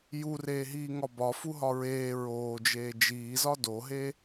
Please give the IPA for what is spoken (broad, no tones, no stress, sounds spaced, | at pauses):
j u r eː ɦ iː ŋ ɒ b ɒ f u ɦ ɒ ɹ eː ɹ oː d͡ʒ eː d͡ʒ iː z ɒ d o ɦ e